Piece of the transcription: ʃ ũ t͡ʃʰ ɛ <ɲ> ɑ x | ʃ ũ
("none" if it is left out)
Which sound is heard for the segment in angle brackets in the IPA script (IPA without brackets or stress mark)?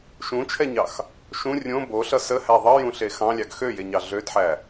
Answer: ɲ